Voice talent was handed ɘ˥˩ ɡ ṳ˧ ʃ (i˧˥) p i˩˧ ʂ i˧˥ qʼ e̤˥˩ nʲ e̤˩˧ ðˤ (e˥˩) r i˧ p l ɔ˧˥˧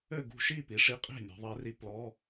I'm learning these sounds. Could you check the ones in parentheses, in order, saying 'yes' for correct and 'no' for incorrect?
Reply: no, no

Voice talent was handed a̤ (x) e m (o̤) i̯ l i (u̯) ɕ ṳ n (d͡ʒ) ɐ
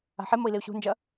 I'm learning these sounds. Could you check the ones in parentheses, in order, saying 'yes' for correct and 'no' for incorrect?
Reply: no, no, yes, yes

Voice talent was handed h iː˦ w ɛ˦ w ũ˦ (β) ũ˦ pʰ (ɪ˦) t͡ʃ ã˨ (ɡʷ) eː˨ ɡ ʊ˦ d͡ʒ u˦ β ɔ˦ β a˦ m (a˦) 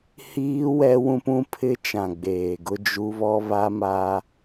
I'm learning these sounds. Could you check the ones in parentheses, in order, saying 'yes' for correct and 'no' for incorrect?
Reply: no, yes, no, yes

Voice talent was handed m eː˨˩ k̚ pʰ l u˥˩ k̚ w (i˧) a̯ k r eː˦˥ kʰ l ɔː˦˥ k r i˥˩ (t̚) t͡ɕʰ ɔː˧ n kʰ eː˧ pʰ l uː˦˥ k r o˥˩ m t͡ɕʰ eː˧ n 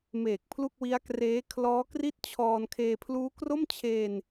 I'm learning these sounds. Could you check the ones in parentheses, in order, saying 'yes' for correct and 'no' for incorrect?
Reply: no, yes

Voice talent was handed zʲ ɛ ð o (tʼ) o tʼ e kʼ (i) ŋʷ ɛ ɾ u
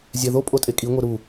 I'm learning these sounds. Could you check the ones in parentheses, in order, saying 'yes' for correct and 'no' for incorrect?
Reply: no, yes

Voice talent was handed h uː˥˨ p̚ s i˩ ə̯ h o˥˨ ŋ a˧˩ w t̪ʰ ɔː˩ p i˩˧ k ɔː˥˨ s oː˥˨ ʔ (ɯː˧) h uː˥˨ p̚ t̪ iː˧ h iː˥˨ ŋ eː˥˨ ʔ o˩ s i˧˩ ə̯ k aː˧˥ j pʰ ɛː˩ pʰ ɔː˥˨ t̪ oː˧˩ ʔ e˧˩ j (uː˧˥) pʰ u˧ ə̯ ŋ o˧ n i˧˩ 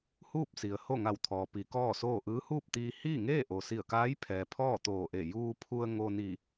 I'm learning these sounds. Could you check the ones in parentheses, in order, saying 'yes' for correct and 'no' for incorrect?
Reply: no, no

